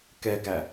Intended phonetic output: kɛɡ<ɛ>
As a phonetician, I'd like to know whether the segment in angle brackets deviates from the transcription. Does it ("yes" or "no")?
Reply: yes